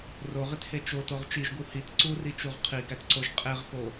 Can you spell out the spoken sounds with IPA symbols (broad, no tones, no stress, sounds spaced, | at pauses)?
r o ʁ i t h e t͡ʃ o t o ʁ t͡ʃ i ʒ ɡ u h i t ǀ u r i t͡ʃ u ʁ qʰ i ɡ æ t ǀ o ʒ qʼ e ʁ x o